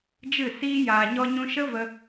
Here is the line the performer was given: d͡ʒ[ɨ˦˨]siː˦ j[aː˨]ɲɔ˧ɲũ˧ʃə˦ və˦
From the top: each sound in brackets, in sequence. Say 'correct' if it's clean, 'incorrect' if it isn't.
correct, correct

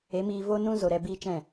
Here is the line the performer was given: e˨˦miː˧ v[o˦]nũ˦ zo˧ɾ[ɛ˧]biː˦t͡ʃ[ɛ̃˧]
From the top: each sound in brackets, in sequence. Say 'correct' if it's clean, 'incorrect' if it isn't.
correct, correct, incorrect

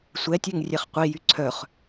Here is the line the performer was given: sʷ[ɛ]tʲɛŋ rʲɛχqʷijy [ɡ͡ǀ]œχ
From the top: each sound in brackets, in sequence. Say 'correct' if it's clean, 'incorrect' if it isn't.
correct, incorrect

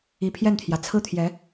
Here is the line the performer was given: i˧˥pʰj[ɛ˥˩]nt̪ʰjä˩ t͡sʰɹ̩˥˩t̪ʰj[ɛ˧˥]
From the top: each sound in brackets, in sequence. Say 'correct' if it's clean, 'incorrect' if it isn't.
correct, correct

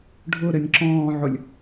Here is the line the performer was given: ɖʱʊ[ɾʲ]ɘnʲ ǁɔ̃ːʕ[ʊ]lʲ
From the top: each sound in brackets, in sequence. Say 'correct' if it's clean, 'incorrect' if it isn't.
incorrect, correct

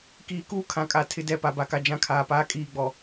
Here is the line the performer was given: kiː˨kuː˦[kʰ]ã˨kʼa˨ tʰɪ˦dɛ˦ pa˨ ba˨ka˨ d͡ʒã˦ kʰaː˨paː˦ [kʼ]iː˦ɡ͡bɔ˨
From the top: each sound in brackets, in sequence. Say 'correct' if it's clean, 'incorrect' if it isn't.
correct, correct

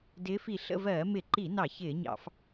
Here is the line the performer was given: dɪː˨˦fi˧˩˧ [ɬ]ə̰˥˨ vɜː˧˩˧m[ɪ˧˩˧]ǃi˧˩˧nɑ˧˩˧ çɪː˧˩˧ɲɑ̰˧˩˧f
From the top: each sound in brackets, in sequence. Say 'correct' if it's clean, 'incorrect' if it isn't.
correct, correct

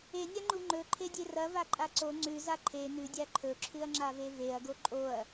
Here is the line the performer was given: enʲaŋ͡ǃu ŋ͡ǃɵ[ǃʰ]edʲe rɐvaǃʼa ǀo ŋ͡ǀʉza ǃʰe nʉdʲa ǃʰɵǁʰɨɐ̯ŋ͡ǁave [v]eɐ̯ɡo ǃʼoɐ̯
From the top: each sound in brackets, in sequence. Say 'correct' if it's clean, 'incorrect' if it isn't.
correct, correct

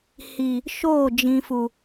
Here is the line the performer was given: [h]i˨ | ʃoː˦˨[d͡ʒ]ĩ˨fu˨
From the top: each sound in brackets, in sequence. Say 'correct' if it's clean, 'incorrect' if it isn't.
correct, correct

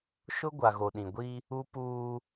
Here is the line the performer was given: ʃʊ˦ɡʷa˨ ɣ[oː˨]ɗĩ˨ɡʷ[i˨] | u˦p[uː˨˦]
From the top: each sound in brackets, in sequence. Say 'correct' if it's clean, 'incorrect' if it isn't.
incorrect, incorrect, incorrect

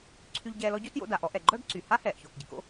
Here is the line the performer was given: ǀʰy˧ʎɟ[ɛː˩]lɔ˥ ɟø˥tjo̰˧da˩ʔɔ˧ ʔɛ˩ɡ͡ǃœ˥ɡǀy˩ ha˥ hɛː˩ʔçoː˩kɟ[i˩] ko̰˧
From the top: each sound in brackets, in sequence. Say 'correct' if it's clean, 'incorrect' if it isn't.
incorrect, correct

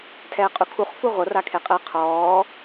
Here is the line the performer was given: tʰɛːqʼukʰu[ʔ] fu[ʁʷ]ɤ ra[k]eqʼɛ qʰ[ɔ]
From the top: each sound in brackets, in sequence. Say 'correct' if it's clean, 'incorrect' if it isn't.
incorrect, correct, incorrect, incorrect

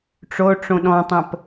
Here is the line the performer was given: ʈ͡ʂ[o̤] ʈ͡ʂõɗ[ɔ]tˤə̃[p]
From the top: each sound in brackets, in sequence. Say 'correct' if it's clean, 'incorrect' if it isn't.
incorrect, incorrect, correct

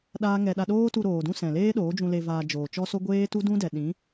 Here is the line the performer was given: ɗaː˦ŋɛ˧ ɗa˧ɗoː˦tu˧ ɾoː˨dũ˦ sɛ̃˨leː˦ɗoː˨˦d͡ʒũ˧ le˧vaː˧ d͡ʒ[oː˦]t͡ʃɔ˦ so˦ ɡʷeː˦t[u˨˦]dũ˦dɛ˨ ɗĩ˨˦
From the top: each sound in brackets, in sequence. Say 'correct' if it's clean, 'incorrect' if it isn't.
incorrect, incorrect

